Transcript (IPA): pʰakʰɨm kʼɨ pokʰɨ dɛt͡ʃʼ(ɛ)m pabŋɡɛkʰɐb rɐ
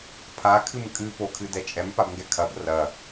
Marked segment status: correct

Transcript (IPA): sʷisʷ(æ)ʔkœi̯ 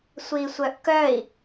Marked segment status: incorrect: œ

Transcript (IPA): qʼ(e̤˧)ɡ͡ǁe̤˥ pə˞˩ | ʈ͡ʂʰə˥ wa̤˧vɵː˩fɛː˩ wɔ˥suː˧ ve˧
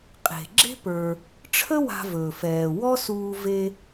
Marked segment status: incorrect: e̤˩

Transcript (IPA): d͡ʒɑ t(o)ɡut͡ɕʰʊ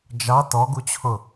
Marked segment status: incorrect: ɔ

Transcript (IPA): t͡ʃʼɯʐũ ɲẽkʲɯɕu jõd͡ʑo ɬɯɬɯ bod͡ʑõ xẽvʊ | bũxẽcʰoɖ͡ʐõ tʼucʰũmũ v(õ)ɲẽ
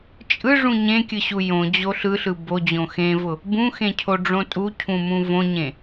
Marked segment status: correct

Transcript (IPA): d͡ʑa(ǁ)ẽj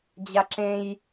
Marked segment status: correct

